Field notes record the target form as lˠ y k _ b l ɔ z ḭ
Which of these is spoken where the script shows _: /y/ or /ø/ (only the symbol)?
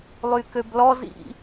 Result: ø